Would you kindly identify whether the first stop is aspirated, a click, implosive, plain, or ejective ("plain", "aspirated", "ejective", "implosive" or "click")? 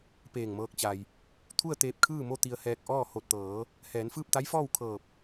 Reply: plain